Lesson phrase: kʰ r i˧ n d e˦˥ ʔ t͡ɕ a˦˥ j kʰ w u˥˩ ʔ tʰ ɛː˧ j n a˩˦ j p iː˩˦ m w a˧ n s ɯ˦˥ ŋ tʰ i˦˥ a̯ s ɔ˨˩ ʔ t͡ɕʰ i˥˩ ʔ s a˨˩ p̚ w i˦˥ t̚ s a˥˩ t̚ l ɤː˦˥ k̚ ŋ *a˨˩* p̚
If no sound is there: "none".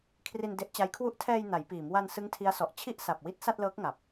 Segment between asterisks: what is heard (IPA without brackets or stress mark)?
a˨˩